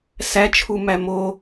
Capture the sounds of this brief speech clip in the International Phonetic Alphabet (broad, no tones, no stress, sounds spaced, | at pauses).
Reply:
s æ t͡ʃʰ u m æ m o